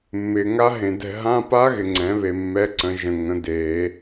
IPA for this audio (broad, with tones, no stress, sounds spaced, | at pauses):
mː ɪː˨ ŋ a˦˥ ɦ ẽ˨ d ɛ̤˦˨ ɦ ã˧˥˧ p a˦˥ ɣ ɪ˨ ŋ͡ǀ ɛ̃˩˥ β e˨ mː ɛ˧˥˧ ǀ ə̃˩˥ ʒ ə̃˨ ŋ ə̃˩˥ d eː˨˩˦